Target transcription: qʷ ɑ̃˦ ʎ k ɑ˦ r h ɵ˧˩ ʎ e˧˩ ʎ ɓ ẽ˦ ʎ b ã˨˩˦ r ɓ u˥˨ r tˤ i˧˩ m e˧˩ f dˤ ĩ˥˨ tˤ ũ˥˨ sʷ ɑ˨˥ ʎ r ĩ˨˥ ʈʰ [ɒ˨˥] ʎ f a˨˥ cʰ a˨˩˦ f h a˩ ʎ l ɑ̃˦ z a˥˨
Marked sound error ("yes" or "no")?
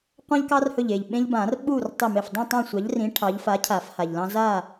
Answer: yes